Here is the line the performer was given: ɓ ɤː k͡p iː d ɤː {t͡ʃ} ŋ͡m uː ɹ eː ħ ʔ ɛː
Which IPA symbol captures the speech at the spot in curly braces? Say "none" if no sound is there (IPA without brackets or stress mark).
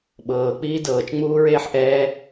t͡ʃ